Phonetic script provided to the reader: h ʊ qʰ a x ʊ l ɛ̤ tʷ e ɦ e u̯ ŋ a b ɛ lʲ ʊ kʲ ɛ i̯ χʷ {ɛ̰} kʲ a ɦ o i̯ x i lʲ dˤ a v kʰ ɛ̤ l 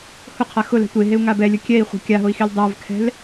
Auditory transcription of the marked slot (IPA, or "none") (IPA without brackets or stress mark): ɛ̤